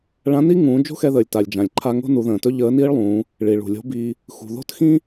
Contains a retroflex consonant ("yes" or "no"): yes